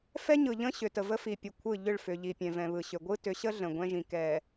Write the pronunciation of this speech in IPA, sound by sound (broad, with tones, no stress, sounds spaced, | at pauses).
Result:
f ɛ˦ ɲ ɯ˨ ʎ ə̃˦ ɕ ʏ˨ t ə˨ v ə˦ f i˨ pʲ ɯ˨ kʷʰ ɯ˦˨ ʎ ʏ˦˨ ɭ f ʏ˨ ʎ i˨ pʲ ɛ̃˨ v ɛ̃˨ β ɯ˨ ɕ ʏ˨ ɡʷ ɯ˦ t ʏ˨˦ ɕ ə˦ ɮ ə̃˨ ɡʷ ɛ̃˦ ʒ ĩ˨ k ɛ˨